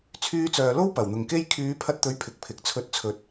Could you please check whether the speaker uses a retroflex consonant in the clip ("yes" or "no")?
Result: no